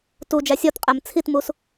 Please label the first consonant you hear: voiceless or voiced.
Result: voiceless